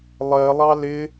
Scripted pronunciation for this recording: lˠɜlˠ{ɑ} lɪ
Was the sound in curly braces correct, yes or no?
yes